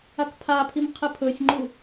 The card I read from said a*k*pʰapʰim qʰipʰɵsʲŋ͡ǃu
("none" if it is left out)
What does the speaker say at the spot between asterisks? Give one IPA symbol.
k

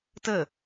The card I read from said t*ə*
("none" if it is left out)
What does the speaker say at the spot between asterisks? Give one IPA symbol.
ə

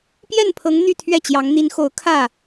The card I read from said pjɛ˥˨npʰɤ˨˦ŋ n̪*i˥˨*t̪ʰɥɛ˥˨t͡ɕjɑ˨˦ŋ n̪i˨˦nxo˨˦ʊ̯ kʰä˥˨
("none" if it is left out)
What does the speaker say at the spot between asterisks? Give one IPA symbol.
y˥˨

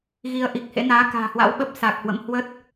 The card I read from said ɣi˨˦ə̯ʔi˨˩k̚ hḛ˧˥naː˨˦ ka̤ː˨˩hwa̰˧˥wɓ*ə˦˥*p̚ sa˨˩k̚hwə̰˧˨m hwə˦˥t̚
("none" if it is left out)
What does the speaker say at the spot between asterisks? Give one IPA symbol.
ə˦˥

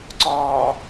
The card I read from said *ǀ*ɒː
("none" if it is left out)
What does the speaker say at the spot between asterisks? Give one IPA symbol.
ǀ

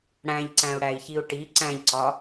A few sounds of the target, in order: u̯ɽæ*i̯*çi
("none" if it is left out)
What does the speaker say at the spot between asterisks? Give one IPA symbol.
i̯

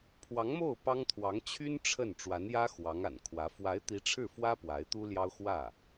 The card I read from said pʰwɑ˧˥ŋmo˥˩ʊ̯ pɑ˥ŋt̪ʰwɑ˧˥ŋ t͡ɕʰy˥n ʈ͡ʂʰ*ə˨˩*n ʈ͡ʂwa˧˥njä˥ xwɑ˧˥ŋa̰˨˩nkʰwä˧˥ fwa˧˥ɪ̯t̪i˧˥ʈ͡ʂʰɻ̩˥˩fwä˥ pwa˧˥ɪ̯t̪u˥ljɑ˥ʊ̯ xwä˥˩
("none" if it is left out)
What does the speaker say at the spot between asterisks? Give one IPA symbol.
ə˥˩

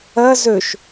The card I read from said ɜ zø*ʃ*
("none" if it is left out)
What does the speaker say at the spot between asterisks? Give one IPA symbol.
ʃ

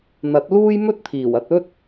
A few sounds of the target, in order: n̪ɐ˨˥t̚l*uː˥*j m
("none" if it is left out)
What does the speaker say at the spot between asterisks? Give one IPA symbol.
uː˥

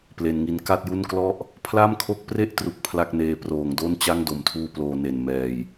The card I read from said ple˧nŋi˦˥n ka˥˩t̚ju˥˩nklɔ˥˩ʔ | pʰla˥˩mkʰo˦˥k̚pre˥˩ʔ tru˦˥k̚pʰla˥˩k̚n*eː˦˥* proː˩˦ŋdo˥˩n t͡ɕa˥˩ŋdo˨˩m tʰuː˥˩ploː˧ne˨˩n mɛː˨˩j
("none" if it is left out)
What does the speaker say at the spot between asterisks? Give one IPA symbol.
eː˦˥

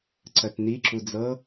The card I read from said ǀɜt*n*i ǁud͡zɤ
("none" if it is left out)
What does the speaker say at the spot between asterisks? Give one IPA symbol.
n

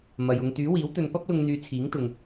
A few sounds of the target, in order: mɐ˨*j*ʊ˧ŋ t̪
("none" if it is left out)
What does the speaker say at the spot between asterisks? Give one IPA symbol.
j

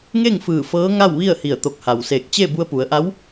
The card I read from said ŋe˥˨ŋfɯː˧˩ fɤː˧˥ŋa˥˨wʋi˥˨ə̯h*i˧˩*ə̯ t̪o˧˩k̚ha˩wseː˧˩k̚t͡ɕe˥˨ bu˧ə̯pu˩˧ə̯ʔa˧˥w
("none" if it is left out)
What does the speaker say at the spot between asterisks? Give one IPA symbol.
i˧˩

